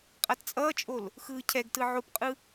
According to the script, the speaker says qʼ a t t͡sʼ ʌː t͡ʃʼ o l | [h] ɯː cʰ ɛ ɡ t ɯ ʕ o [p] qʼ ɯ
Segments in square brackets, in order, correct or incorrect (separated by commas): incorrect, correct